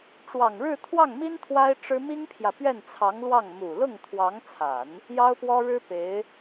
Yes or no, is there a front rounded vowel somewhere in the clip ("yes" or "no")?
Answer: no